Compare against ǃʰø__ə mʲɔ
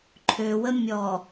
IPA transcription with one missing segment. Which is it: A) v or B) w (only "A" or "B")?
B